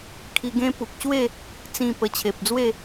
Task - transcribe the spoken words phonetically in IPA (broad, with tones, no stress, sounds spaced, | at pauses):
kʰ i˧ ɡ ẽ˦ p u˨ k̚ ɕ w e˥˧ | t͡s ĩ˥˧ p ə˧ t͡ɕʰ e˨ p̚ d͡z w e˥˧